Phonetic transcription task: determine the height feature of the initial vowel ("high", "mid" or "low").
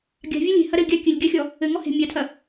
low